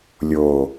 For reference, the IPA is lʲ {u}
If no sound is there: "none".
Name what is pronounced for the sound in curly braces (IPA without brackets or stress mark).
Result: o